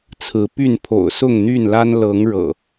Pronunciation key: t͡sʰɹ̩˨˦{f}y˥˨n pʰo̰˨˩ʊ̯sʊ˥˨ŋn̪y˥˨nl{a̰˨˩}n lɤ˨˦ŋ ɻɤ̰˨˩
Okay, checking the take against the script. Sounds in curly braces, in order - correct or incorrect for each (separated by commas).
incorrect, incorrect